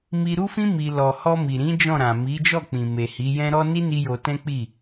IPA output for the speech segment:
m i˧ ɾ u˦ f ĩ˦ m i˧ l ɔ˨ h ɔ˧ m i˨ ɾ ĩ˨˦ d͡ʒ ɔ̃˦˨ ɾ ã˨ m i˨˦ d͡ʒ ɔ˦˨ k͡p ĩ˨ m e˨ h i˨˦ j ɛ̃˦ ɾ ɔ˦ n i˦ n i˦ j o˧ t ɛ̃˦ k͡p i˦˨

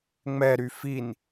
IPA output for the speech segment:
ŋ͡m ɛ ɾ y f i n

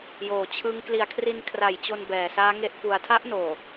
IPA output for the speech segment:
j oː˨˩ t͡ɕʰ ɯ˦˥ ŋ k l i˨˩ a̯ kʰ r i˧ n kʰ r a˨˩ j t͡ɕ o˧ n b ɛː˨˩ s aː˦˥ ŋ e˦˥ ʔ f u˧ a̯ tʰ a˦˥ ʔ n oː˨˩

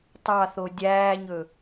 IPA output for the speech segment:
tˤ ɑ θ o dʲ æː ɲ ɵ

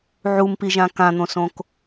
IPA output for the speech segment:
ʕ u m p i ʒ ã k ã n̪ õ s õ k

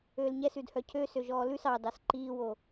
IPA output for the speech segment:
øː l ɲ ɛ s ʉ d h œ cʰ ø s ø ʒ ɔː l ʉ s ɑ d ɑ s ǃ iː w o

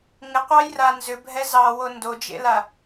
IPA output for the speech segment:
ŋ ɪ qʷ ɑ j r a n z ʏ bʱ ɛ z ɑ w o n d o d͡ʒ ḛ l a

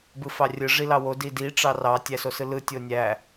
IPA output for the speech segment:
b ɯ f ɑ rʲ ɯ ʐ i l ɑ w o d i d i ʈ͡ʂ ɑ r ɑ tʲ æ s o s ɯ l ɯ tʲ o nʲ æ

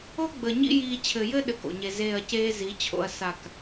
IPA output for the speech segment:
o˦ ɡ͡b ə˨ ɲ ḭ˦ j iː˧ t͡ɕʰ ɘ˨ j ɘ˦ ɗ ɘ˦˨ k o̰˨ ɲ e˧ z eː˦˨ ɐ̯ c eː˦ z i˨˦ t͡ɕʰ o̰˧ ɐ̯ s a˦˨ k

